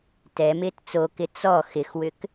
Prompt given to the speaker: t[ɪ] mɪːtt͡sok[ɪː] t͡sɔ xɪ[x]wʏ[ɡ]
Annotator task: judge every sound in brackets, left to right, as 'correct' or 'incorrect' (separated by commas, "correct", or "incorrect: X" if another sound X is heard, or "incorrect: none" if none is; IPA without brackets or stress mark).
incorrect: ɛ, incorrect: ɪ, correct, incorrect: k